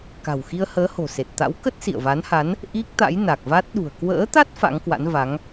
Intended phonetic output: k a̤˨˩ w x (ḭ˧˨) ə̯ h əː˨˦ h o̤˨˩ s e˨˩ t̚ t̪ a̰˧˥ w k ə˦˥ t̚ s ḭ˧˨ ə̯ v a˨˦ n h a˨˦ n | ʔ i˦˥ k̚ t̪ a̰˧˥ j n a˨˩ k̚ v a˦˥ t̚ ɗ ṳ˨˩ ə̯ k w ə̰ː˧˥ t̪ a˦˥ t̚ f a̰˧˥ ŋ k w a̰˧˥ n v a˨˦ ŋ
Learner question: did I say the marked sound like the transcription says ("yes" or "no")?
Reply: no